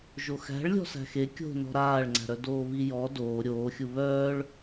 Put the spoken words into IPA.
ʒoxæ̤ɭ lʲɔ̤sæ̤xe kʲo̤ nɔ̤ɾaːɭŋ͡ǀæ̤ɾœ doːβijɔ doː ɾʲoːxʲu βœːɭ

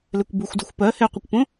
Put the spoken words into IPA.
lekʷbuxʷduxʷ pɜ heqʷəkʷpõ

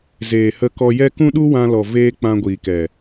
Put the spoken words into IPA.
zeː˨hə˧kɔ˧jɛ˦ kũ˦ɗu˦wã˧lɔ˨ veː˦ k͡pã˧ɡʷiː˨kɛ˨

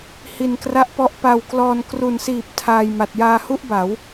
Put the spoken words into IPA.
hi˧nkra˦˥ʔpɔ˦˥ʔ pa˧wklɔː˧n kru˩˦nsiː˨˩p̚ tʰaː˧j ma˨˩t̚jaː˧hu˥˩ʔba˩˦w

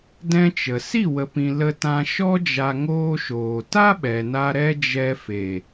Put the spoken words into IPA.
dɛ̃˦t͡ʃə˨ si˦˨wə˨pĩ˨ lə˧tã˧ ʃɔ˦d͡ʒa˧ ŋoː˦ʃoː˨ ta˦ɓɛ˨na˧ ɾɛ˦ d͡ʒɛ˦ fe˨

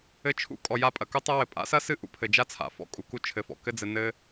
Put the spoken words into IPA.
ɘ˧t͡ʃʰṵ˥ kʼɔ˩ja˧ pʼɐ˩ku˥tˤa˥wɘ˩ pʼa̰˥sɐ˥ sɨ˥ ʔṵ˧pʰɘ˩d͡ʒa˥t͡sʰa̰˩ fɔ̰˧kʼu˩ku˧ t͡ʃʰɘ˩fɔ̰˩ kɘ˥d͡zɘ˧nɘ˥

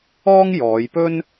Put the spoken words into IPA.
ɔː˥ŋ jɔː˨˧jpɵ˥n

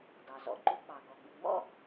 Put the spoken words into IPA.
dɑ˩zɔ̰˩ǃu˧k͡pɑ˩ ɡɔ˩ɡ͡bɨ˩ ŋ͡mɔ̰˥

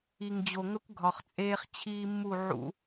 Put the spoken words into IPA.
i˨ŋd͡ʑo˨ŋə˦kʷ ɡʱɒ˨χt͡sʼeː˦χt͡ɕʰiː˦mːu˦˨ ʕṵ˦

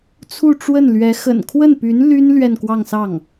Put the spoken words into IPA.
t͡sʰu˥˧ʈ͡ʂwə˥˩nlɥɛ˧˥ xə̰˨˩nkʰwə˥˩npy˧˥n ly˥n lɥɛ˥˧nkwɑ˥˧ŋsɑ˥˩ŋ

